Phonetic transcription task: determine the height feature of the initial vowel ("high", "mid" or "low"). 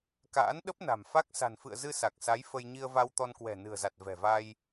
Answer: low